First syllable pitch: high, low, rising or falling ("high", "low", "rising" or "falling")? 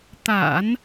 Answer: low